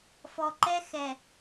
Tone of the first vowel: low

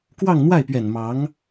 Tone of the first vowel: falling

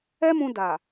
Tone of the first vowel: high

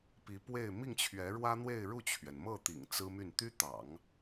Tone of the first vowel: rising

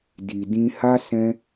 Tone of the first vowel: low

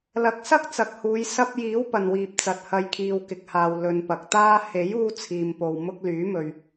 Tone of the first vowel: rising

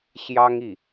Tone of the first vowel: high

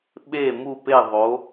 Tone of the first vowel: falling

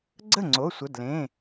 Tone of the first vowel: falling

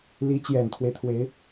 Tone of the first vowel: rising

